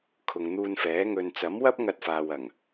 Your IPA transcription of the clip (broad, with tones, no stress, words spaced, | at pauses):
kʰʊ˨ŋn̪uː˧nfɛː˨˥ ŋɵ˨nt͡sɐ˨˥mwɐ˥p̚ ŋɐ˧t̚faː˨w ɐ˨˩ŋ